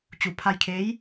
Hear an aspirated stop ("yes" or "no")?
yes